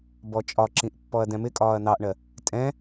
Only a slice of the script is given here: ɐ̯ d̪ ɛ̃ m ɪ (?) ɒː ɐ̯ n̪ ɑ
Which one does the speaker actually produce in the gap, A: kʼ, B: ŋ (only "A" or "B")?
A